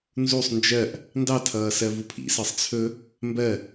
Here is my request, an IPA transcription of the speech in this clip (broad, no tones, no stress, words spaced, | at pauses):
nzusˤ nd͡ʒɜʔ | ndɑtʰʌː sɜvupʰḭsɜsˤ t͡sʰɵ | mbɜ